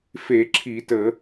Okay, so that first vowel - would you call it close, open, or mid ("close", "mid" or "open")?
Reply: mid